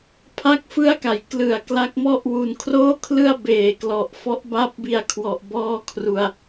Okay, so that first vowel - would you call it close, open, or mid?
open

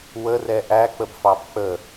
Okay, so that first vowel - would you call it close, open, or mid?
mid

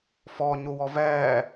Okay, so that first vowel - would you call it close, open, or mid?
mid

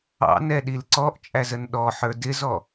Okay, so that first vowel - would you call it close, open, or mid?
open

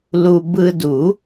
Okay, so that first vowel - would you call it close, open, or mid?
close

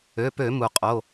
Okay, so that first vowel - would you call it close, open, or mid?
mid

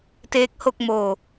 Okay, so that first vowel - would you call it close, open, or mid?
mid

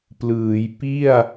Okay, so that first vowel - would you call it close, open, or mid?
close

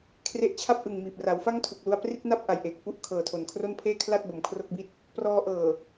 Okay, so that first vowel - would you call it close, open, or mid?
mid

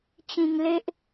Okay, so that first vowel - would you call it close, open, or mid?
close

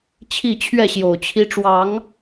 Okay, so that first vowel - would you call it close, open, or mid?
close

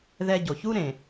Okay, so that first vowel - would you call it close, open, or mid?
mid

